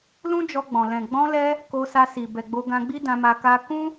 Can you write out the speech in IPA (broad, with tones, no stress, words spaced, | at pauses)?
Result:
lũ˦d͡ʒɔ˧ɡ͡bɔ̃˨ lɛ̃˨ ɡ͡bɔ̃˧lɛ˧ | ko˧sa˧si˨ bɛ˨ɡ͡bo˧ɡã˧ɡ͡bi˦ dã˧ma˧ ka˧ kũ˦